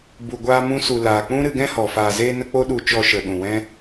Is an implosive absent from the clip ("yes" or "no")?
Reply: no